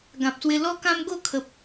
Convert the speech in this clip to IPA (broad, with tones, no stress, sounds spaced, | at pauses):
ɡ ã˨ p̚ s w e˧ l ɔ˦ k ã˦ m ɡ o˥˧ kʰ ə˨ p̚